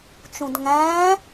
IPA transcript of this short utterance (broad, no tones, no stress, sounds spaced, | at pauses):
t͡ʃ ũ d ŋ æ̃ː